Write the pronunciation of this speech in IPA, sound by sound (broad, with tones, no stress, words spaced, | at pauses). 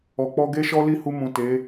ɔ˨k͡pɔ˧ɡe˦ʃɔ˦ li˦˨hu˧mũ˨ te˨˦